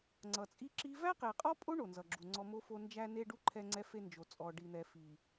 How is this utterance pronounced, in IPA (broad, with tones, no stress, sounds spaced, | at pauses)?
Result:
ŋ͡ǀ ʌ˨ t͡sʼ i˦ ǁ i˦ v æ˦ q e˨ qʼ ɔ˦ pʼ o˦ ɳ o˨ n z ʌ˨ ɡ͡ǁ u˨ ŋ͡ǀ ɔ˦ m o˦ f o˦ n d͡ʒ æ˦ n e˦ ɖ u˦ ǃʰ ɛ˦ ŋ͡ǀ ɛ˦ f e˦ n d͡ʒ o˨ t͡sʼ ɔ˨ ɖ i˨ n̪ ɛ˨ f i˨